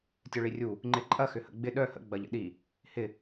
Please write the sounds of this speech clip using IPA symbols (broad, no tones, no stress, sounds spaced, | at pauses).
tʲ œ ɭ i rʲ u | ŋ͡ǃ ɪ ǃʼ ɐ x ʏ h ə̰ ɡ͡b ɪ ɗ œ h ə̰ ɡ͡b ɐ ʎ ə̰ ɗ i | h ɪ